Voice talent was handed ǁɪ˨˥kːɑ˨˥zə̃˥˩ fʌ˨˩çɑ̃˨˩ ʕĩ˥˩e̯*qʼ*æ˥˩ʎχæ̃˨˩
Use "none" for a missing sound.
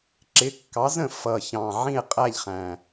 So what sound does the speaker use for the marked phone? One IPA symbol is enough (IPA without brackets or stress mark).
qʼ